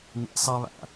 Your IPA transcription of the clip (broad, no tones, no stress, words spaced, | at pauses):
n̪ḭsˤaβa̰